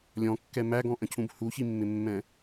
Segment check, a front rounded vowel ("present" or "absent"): absent